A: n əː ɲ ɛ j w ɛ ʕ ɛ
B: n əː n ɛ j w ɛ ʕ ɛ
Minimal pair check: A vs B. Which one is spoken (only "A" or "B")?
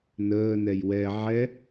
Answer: B